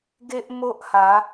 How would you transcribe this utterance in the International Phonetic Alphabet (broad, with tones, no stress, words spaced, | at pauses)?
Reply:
ɡe˦ʔmo˦ʔha˨˦